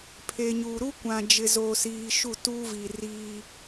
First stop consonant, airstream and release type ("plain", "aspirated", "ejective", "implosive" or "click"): aspirated